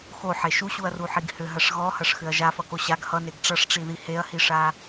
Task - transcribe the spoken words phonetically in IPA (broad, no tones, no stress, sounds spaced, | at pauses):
x o ħ e ʃ u ɕ u ɐ̯ r u ħ i ɡ h ʏ ɦ ɐ ʂ ɣ ɔ h ɐ ʂ x ʏ ɐ̯ ʒ a f ʌ k o ɕ a ɡ h ʌ n e ɡ ʈ͡ʂ ʌ ʂ ʈ͡ʂ i ð i h e ɐ̯ h i ʂ a